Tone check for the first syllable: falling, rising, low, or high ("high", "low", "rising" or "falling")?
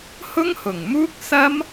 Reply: high